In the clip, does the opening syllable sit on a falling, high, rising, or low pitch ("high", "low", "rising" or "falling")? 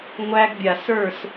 high